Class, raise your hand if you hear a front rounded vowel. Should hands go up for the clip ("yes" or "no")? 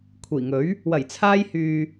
yes